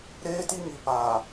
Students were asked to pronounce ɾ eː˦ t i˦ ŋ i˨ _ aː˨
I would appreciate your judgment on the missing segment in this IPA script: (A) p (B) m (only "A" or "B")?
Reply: A